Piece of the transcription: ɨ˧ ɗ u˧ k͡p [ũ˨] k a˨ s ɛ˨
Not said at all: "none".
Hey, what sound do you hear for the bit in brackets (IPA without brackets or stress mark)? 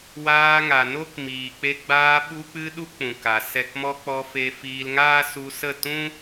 ũ˨